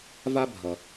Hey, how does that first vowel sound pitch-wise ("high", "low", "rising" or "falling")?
high